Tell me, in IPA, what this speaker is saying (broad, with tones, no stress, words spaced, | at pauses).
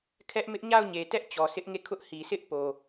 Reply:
kʰɛ˦ʔmɪ˦ʔ ɲa˦˨ʊ̯ɲe˨tɛ˦ʔ t͡ɕɔ˨sʰɪ˦ʔŋe˦˨kʰʊ˦ʔ hi˨sʰɪ˦ʔ po˨